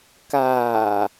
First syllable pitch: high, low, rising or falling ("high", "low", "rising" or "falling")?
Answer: low